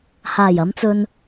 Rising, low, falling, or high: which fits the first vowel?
low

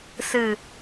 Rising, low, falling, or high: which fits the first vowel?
falling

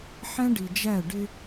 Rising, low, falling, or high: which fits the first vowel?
high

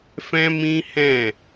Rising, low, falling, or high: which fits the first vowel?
high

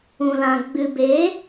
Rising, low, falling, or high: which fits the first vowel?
low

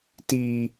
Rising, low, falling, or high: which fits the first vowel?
low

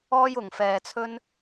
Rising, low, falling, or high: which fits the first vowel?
high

